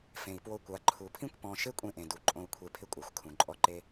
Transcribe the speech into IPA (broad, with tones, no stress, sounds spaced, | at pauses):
f ẽ˨ i̯ p w o˧ kʷ a˨ ǃʰ u˨ pʰ ĩ˦ kʷ p ɔ̃˧ ʃ e˦ kʷʼ ẽ˧ ʔ ẽ˨ d u˨ ǃʼ õ˧ u̯ kʷʰ e˧ pʰ ɪ˦ kʷʼ a˨ xʷ kʰ ũ˨ ǃʼ ɔ˧ ǃ e˧